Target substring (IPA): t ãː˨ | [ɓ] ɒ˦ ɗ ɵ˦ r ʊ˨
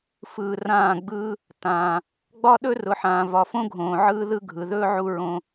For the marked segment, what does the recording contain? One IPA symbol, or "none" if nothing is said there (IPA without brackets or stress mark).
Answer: ɡ͡b